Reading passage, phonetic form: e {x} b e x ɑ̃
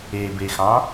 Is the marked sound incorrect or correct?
incorrect